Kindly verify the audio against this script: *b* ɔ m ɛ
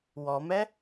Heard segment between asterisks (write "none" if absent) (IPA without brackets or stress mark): w